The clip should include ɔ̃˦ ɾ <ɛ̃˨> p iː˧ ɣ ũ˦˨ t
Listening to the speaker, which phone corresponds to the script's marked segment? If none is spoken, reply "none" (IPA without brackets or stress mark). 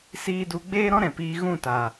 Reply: ɛ̃˨